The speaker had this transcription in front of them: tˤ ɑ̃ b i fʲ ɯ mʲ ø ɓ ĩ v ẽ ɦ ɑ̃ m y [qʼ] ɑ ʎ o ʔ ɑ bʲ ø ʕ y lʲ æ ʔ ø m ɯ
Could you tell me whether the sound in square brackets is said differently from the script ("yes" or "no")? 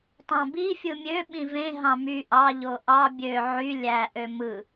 yes